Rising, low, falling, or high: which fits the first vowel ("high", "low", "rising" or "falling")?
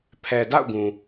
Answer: low